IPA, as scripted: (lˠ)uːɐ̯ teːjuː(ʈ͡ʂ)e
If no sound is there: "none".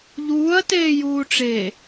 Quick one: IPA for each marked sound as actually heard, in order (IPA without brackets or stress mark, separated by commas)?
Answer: ʎ, ʈ͡ʂ